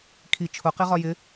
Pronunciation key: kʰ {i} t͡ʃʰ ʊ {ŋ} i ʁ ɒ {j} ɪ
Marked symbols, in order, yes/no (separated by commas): yes, no, yes